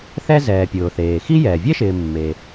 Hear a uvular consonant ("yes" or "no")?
no